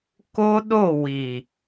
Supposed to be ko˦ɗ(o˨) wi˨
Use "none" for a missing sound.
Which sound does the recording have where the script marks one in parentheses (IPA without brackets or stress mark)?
o˦˨